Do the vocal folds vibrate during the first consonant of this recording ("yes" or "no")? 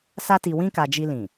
no